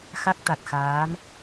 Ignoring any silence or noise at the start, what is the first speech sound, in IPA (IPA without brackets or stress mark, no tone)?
x